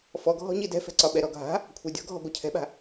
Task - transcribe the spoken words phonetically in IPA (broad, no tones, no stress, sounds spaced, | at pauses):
f ɔ ɡʱ ɔ̤ ɲ i d ɛ̤ f ɛ̤ ǀ ɒ ɓ ɛ ɾ ɔ ɡʱ a̤ | kʷʰ a dʲ ɔ̤ ɡʱ ɔ̤ ɡʷ a cʰ ɛ̤ ɓ a̤